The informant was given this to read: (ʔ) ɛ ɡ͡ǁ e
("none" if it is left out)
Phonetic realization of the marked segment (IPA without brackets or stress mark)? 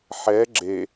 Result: ħ